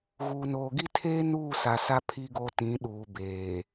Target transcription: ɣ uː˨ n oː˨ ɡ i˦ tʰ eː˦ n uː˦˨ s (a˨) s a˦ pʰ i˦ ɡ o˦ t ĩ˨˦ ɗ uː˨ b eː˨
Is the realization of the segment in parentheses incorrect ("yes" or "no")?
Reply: no